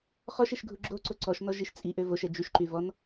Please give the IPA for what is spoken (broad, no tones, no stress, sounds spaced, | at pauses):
χ ɔ ʃ e ʃ ɡʱ u ɡ͡ǁ o ǀ o ǀ ɔ ʃ n ɔ ʒ i ʃ t͡sʼ i ʔ ø v o ʃ ɛ d͡ʒ y ʃ ǃ y v ɔ n